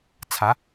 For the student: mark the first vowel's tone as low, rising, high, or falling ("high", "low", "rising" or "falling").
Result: rising